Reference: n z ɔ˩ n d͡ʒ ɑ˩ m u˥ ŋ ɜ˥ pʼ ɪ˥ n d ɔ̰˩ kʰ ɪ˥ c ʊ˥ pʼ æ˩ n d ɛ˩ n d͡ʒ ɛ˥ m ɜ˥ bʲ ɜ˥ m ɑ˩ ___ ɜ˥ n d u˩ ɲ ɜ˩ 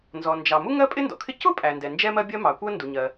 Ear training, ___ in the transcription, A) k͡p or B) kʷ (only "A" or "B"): B